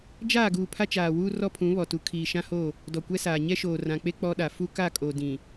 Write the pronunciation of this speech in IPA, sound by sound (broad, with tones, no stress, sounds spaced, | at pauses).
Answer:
d͡ʒ aː˦˨ ɡ uː˨ pʰ a˦ t͡ʃ aː˨ w uː˦ r ɔ˦ pʰ ũ˨˦ β ɔ˨ t u˨ kʰ iː˨ ʃ ã˦ h o˦˨ | d ɔ˨ kʷ ɛ˦ s aː˨ ɲ ɛ˦ ʃ oː˨ r ã˨ k͡p e˦ k͡p ɔ˦ ɗ a˨ f u˦ k a˦˨ kʼ o˨ d ĩ˨